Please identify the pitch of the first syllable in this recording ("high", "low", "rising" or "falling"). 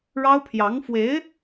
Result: high